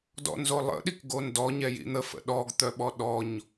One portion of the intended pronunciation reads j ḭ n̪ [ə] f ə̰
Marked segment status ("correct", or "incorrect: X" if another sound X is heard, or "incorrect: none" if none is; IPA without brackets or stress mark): correct